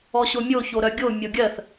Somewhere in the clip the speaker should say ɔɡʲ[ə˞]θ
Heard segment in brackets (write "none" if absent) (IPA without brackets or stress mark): ɜ